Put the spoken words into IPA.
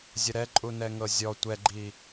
zʲəɾɛ ǃʼunɛŋɤzʲɔ tʷɛɡ͡ǃi

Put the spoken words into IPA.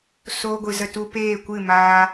soː˧ɡʷɨ˨zə˧ tu˧peː˦˨kʷɨ˦˨ maː˧

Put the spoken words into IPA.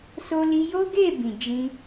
so˦li˦ jo˦ɡe˦˨bĩ˨d͡ʒĩ˧

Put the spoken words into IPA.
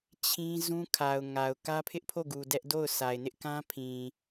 t͡ɕʰĩ˦ zũ˦kʰa˨ʊ̯ŋa˨ʊ̯ kä˦pʰɪ˦ʔpʰo˦˨ɡu˨ dɛ˦ʔdo˦˨ʊ̯sʰa˨ɪ̯ nɪ˦ʔkã˦pʰĩ˨

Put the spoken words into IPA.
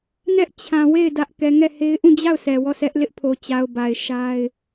nɛ˦ʔ t͡ɕʰã˨ we˦˨ɪ̯ dä˦ʔ kɛ˨ŋɛ˦˨he˦ɪ̯ ʔũ˦˨d͡ʑa˦˨ʊ̯ sʰɛ˨wɔ˦˨sʰɛ˦ʔ lɪ˦ʔpʰo˨t͡ɕa˨ʊ̯ ba˨ɪ̯ʃa˦ɪ̯

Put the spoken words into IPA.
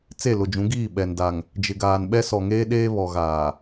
t͡se˦˨lʊ˨d͡ʒũ˨˦ɡiː˦˨ ɓɛ˨n da˨ŋ | d͡ʒɪ˨ɡaː˨n ɓɛ˦sɔ˨ŋeː˦ɗeː˦ βɔ˨ɣaː˨

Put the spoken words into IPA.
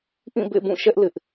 ʔĩ˦˨bḛ˦˨bũ˦˨ʃɛ˦ʔ lɪ˦ʔ

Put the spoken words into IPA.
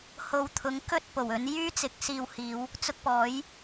ho˨wt̪ʰʊ˨˥ŋ kɵ˥t̚po˨˩wɵ˨˧n jyː˥t͡sɪ˨˥k̚ siː˧w hiː˨˧w | t͡sʊ˧k̚pɔː˨˥j

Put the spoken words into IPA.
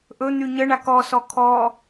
ʔɵ n̪yɲəɳak ɔsɔ kʰɔ

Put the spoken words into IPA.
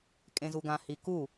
kʼẽzuɡã hiku

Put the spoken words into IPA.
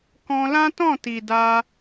kɔ̃˧lã˦tɔ̃˦˨ ti˨da˧

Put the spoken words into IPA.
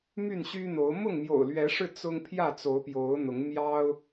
my˥˨nɕy˦n̪o˨˦ʊ̯ mʊ˥˨ŋmjo̰˨˩ʊ̯lɥɛ˨˦ʂɻ̩˧ t͡sʊ˦ŋ pʰjä˥˨t͡so˨˦ʊ̯pjo˨˦ʊ̯n̪ʊ˨˦ŋ mjɑ˦ʊ̯

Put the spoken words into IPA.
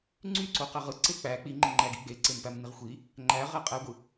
ŋ͡ǀyǀoqæʁ ɯǀe k͡pæ k͡piŋ͡ǃiŋ͡ǃæɡi ɡ͡beǀempæmniʁ xʷi | ŋ͡ǃæʁæ qʼæɡʷɯ

